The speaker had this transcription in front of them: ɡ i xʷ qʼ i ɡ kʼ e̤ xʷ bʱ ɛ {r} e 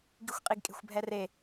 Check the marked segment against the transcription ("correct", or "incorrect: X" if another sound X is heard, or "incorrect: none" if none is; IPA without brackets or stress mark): correct